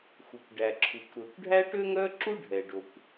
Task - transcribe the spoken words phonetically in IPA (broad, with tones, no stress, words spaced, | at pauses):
xu˩kʷɖæ˩ǁʰu˩kʷ ɾɵ˩kʷɖʱæ˥ʈø˥ ŋœ˥ǁu˥ ɖʱɛ˩ɖo˩kʷ